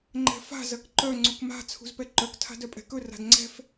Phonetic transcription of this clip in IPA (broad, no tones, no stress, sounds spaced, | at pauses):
ŋ͡ǃ ɛ̤ f a̤ z ɐ k ǃ œ ŋ͡ǀ u k m a̤ t͡sʰ ṳ z p ɛ ǃ œ k tʰ a̤ d œ pʼ ɛ̤ k ɵ r a̤ d ŋ͡ǀ ɛ̤ f